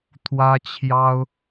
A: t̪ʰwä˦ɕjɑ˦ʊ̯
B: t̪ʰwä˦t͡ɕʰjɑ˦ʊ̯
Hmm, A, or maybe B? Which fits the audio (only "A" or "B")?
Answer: B